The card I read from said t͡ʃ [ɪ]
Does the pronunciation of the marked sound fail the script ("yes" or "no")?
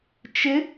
no